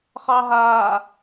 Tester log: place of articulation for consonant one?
uvular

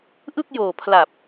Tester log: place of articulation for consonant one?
glottal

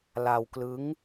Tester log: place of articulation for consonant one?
alveolar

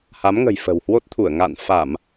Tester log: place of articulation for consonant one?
glottal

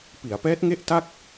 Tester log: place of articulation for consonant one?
labial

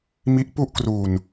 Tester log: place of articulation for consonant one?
labial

